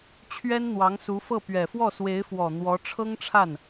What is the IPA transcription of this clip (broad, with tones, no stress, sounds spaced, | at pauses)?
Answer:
t͡ɕʰ ɥ ɛ˥ n n̪ w ɑ˧˥ ŋ s u˧˥ f ɤ˥˩ p ɥ ɛ˨˩ f w ɔ˥˩ s w e˧˥ ɪ̯ f w ɔ˨˩ n̪ w ɔ˧˥ ʈ͡ʂʰ ɤ˥ ŋ ʈ͡ʂʰ a˥˩ n